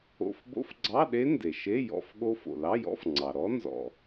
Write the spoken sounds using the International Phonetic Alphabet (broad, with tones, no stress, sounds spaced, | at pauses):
o̰˧˥˧ f b o̰˦˥ f ɡ͡ǀ ɑ˧˥˧ ɗ e˦˥ n d e˩ ʃ e˧˥˧ j ɔ̰˧˥˧ f ɠ o˦˥ f o̰˩ l ɑ˧˥˧ j ɔ̰˧˥˧ f ŋ͡ǀ ɑ˩ ɾ ɔ˦˥ n z ɔ̰˩